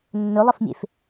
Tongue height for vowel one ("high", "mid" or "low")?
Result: mid